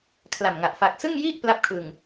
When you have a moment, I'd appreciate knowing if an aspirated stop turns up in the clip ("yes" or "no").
yes